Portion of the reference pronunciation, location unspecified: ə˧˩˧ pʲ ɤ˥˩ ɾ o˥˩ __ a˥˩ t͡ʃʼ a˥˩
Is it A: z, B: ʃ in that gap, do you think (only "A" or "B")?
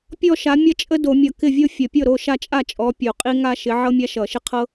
B